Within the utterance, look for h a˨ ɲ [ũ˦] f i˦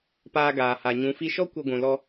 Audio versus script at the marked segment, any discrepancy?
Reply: yes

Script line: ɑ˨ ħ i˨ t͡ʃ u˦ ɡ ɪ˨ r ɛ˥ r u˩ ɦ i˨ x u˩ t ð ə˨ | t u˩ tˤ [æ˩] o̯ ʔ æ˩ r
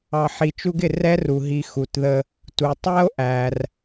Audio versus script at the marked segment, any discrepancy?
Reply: yes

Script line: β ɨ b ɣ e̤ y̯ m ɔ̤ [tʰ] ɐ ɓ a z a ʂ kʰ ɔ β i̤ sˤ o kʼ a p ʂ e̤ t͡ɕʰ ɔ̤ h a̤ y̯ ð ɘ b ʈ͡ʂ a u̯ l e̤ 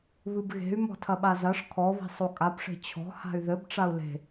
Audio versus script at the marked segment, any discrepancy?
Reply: no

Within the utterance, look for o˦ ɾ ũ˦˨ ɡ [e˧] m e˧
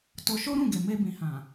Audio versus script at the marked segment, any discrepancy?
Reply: yes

